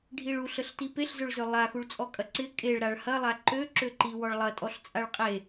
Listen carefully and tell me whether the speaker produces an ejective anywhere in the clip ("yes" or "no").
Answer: yes